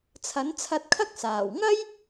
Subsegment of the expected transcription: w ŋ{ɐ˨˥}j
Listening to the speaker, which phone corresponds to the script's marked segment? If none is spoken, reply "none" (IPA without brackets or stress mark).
ɐ˥